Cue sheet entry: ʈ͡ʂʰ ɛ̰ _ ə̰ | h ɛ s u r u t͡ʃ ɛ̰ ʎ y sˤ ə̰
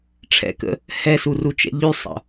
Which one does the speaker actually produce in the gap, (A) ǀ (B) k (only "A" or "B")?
B